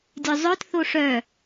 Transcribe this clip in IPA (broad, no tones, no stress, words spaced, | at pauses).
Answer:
dʲœzˤœt θoʂœ